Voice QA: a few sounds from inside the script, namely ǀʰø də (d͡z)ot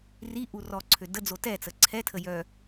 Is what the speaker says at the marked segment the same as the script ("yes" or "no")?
yes